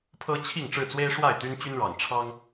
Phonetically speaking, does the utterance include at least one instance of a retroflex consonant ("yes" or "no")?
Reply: yes